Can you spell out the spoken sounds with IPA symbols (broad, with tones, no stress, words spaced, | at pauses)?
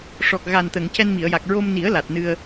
ʂɔ˨˩k̚ ɣa˨˩nt̪ə˨˩˨ŋ cɛ˧nmi˨˩˨ə̯ja˨˩k̚ ɹo˧mni˨˩˦ə̯ la˨˩t̚ nɨ˧ə̯